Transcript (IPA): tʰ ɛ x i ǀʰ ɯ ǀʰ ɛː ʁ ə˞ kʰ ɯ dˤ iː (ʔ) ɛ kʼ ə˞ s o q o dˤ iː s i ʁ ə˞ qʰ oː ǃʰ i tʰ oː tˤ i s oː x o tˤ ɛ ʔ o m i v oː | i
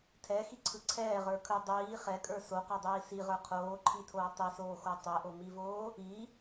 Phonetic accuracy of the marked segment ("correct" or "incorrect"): incorrect